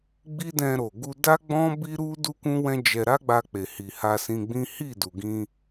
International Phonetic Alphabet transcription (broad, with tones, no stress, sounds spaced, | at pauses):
ɡ͡b i˦ d ɛ̃˧ ɾ o˨ ɡ u˧ d a˦ ɡ͡b ɔ̃˦ b i˦ ɾ u˦ d u˦ k ũ˦ w ɛ̃˦ d͡ʒ ɛ˧ ɾ a˦ ɡ͡b a˧ k͡p e˨ h i˨ h a˧ s ĩ˧ ɡ͡b ĩ˦ h i˦˨ d u˨ ɡ ĩ˧